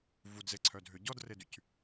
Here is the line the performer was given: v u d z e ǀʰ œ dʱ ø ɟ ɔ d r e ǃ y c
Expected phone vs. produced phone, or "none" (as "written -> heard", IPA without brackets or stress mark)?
ǃ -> d